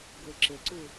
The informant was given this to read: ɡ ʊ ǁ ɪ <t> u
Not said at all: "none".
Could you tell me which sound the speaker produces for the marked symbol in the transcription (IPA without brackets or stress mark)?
ǀ